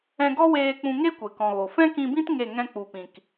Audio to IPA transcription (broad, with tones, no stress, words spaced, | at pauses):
ɛ̃˧ɡɔ˦weː˧ k͡pũ˧ŋe˦ kʷe˨kɔ̃˨ɣo˨ fɛ̃˦kĩ˧bĩ˦t ŋe˦˨ ŋɛ̃˧k͡pu˨pĩ˨k